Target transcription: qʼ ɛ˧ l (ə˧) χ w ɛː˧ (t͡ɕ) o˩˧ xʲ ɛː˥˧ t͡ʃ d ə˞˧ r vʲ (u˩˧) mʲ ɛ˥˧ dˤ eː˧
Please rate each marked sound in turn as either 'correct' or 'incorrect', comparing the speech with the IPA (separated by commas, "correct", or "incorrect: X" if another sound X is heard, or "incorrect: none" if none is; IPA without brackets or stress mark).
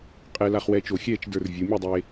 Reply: incorrect: a˧, incorrect: t͡ʃ, correct